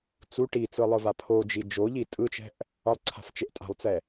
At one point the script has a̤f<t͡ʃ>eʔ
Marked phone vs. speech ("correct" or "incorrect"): correct